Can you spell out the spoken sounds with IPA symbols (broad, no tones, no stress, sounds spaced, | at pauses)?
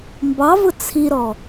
m b ɑ v ʊ t͡sʰ i ɾ ɔ